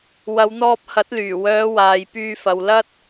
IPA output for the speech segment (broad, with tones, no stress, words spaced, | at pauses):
wɐ˨˧wn̪ɔː˧p̚ hɐ˨˥t̚lyː˨˩wœː˨˧ waː˨jpyː˧fɐ˨w lɐ˥t̚